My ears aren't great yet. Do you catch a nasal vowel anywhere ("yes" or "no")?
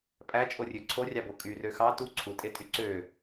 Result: no